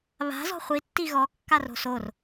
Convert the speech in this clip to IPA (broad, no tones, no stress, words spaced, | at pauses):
βa̤ zɔ̤χʷi tːiɣɔ kːaro̤sor